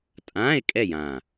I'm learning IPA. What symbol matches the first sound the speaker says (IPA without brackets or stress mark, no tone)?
tʼ